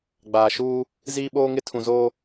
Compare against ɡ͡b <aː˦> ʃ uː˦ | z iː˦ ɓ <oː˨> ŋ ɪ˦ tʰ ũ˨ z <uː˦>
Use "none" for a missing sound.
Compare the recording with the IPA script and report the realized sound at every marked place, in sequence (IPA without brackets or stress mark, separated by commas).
aː˨, oː˦, oː˦